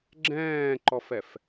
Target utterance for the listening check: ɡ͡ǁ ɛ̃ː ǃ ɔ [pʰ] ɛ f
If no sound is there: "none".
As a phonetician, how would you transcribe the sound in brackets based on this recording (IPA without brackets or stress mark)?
f